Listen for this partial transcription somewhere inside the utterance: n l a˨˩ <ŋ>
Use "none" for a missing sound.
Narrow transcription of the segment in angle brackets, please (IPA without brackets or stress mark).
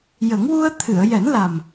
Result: m